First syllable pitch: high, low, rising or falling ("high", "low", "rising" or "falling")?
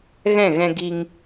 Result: falling